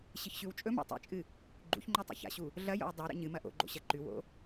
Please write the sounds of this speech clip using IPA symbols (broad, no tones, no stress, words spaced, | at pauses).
ɕɨçɕʉwt͡ʃʼɵma̰ tˤḛt͡ʃʼɨ | ɡ͡ǃṵçŋ͡ǃu tˤḛça̰ɕu | ɮɐjo̰w dˤoɾḛ ɲɨmɐ ʔo̰ɡ͡ǃo̰ ɕɐǃʉwo̰